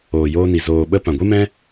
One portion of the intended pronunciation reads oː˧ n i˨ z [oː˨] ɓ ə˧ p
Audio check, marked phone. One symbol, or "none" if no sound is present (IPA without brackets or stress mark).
oː˨